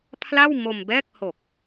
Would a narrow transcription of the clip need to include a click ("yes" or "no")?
no